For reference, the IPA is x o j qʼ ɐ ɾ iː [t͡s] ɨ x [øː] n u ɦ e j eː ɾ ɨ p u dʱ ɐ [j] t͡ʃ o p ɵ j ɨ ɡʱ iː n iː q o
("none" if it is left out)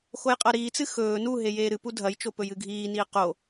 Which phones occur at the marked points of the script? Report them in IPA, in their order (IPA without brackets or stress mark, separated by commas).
t͡s, ɵː, j